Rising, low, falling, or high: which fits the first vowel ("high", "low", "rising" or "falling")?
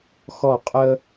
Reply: falling